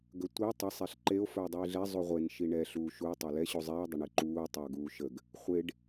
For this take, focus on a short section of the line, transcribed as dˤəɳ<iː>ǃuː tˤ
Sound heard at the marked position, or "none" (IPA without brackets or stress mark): i